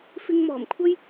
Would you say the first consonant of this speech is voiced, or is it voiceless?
voiceless